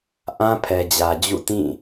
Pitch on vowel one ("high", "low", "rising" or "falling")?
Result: high